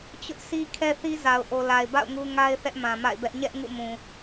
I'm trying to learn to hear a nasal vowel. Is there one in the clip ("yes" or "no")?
yes